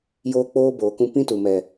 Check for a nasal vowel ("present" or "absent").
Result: present